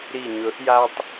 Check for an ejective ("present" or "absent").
absent